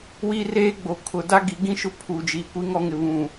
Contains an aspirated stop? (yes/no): yes